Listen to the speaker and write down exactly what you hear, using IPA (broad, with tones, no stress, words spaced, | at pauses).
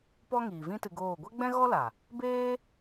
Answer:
pɔ˦ŋiː˨vĩ˦ tɨ˧ɡoː˦˨ ɡʷɛ˦ɡ͡bɛ̃˦ɣɔ˦la˨ | beː˦